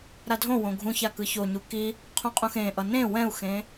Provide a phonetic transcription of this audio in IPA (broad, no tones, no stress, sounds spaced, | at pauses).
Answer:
ɾ a dʱ õ w õ ɡʱ ũ ç a k ɯ ç o ɲ u k i | qʰ ũ qʼ ũ x ẽ ʔ ʌ n ẽ w ɛ̃ u̯ x ẽ